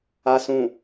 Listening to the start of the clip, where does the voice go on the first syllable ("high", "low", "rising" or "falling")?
low